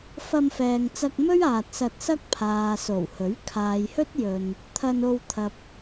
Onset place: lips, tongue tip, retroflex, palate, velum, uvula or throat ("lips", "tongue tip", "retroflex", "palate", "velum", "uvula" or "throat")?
lips